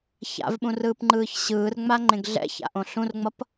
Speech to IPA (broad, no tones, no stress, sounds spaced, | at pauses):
ç a̰ v ɓ ũ r ɯː p ŋ͡ǃ ɯː ç ɕ ɯː r ŋ͡m a ŋ͡ǃ ẽ ɡ ɮ ɛ̰ ç a̰ ʔ õ ɬ ũ r ŋ͡m ʌ p